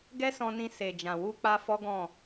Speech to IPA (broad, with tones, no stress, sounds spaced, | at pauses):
ɡ ɛ˦ s ɔ̃˧ n ĩ˧ s e˨ d͡ʒ ã˨ w u˧ k͡p a˧ f ɔ˦ ɡ ɔ̃˦˨